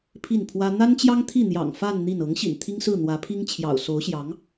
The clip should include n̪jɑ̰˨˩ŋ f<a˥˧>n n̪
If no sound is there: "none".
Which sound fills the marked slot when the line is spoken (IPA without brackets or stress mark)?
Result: a˥˧